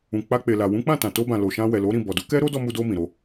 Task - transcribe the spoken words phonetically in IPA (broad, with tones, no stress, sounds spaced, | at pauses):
ũ˨ k͡p a˧ k͡p e˨ l a˨ w ũ˨˦ k͡p ã˦˨ t ã˨ t o˧ b ã˨ l o˨ ʃ ã˧ w ɛ˨ l o˨˦ ɾ ĩ˦˨ b ɔ˨ d u˨˦ k ɛ˦ ɾ o˦ d ɔ˧ m u˧ d o˧ m ĩ˨ ɾ o˧